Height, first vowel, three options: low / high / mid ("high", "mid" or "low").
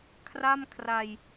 low